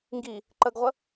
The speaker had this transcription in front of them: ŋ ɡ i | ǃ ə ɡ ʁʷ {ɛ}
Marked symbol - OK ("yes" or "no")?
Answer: no